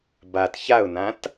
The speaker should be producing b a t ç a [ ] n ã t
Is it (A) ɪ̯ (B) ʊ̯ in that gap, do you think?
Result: B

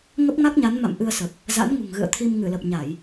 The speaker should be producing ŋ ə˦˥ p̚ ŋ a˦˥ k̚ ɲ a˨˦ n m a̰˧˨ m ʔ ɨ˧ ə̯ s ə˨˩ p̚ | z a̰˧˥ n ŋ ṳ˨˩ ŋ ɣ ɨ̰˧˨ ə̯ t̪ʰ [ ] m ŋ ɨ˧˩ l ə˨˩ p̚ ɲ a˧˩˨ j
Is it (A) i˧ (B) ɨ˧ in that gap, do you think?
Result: A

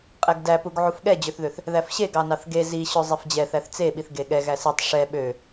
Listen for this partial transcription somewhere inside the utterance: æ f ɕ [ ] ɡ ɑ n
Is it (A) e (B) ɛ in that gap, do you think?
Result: A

